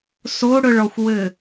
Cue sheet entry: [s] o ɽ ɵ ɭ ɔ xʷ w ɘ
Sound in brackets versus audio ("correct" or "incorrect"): correct